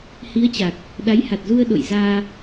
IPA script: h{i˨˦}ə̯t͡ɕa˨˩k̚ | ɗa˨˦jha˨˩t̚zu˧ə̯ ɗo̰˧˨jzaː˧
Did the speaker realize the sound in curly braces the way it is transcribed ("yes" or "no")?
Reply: yes